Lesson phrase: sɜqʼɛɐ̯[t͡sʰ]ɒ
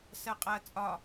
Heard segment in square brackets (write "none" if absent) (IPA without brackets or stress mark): t͡sʼ